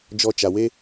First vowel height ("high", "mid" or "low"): mid